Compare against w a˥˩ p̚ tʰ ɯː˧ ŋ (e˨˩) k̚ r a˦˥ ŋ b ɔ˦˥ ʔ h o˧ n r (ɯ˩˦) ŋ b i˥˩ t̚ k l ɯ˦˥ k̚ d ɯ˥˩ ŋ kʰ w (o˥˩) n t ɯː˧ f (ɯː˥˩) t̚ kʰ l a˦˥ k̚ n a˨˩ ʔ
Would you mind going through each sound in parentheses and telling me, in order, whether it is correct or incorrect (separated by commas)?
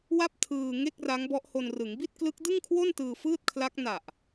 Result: incorrect, correct, correct, correct